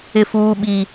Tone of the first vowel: high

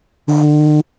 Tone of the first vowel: high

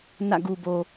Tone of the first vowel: falling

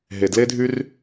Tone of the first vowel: low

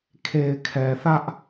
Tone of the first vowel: low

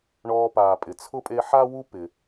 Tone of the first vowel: high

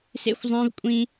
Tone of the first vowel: high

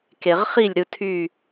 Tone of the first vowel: low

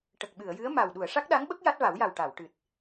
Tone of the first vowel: low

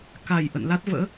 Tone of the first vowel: low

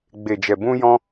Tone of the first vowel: low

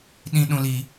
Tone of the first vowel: high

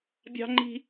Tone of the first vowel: high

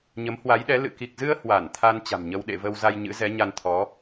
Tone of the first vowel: rising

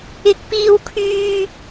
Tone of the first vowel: high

